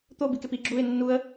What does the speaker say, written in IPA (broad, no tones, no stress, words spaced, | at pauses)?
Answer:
t̪o bikepi ɡ͡ǁuɪ̯ nːuə̯